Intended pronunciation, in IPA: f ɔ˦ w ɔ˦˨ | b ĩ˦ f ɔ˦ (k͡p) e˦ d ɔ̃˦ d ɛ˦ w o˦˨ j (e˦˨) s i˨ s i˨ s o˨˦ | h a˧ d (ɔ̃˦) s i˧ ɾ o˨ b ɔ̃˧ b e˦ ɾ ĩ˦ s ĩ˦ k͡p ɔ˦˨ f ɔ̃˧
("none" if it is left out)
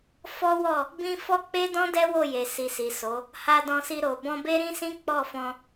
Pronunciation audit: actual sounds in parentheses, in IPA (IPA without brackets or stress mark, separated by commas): k͡p, e˨, ɔ̃˧